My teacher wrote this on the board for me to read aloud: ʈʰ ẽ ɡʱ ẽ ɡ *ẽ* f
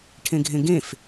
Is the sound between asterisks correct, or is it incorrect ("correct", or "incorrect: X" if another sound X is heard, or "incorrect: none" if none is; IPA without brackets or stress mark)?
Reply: correct